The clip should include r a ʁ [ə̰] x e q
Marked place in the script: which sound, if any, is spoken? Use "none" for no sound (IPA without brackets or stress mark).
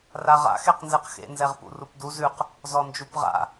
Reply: a̰